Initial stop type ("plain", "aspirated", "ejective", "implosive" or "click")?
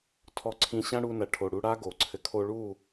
aspirated